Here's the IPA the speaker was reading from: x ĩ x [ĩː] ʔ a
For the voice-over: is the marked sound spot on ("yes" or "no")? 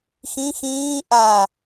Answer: yes